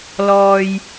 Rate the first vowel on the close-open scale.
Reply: mid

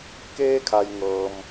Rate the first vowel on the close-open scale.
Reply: mid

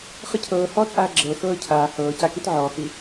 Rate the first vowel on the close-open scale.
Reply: close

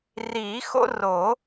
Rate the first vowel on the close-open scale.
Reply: close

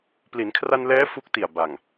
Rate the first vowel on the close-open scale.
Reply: close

